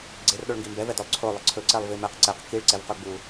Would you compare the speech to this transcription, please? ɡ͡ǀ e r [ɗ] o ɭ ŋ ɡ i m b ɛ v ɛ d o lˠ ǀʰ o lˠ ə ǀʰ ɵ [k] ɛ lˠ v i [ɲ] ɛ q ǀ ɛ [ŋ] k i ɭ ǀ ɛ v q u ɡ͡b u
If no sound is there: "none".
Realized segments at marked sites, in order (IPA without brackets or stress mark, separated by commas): ɗ, ǀ, m, q